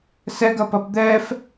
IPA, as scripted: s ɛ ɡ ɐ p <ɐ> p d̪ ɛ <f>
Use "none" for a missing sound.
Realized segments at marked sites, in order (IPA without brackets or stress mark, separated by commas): ɐ, f